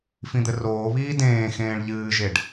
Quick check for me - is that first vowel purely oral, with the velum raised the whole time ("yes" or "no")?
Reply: no